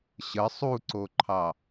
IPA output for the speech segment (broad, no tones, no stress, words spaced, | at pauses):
ɕə sˤuǀoǃʰɑ